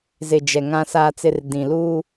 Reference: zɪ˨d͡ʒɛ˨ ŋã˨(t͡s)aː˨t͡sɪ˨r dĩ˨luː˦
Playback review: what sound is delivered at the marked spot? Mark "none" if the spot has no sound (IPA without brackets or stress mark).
s